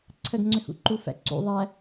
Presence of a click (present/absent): present